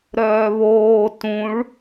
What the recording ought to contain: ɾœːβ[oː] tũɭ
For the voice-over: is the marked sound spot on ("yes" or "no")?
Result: yes